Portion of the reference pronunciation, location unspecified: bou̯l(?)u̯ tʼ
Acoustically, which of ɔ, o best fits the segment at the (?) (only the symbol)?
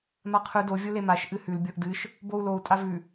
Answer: o